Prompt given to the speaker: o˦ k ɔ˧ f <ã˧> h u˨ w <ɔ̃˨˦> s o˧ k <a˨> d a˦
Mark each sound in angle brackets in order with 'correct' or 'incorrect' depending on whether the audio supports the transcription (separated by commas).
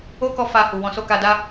incorrect, correct, incorrect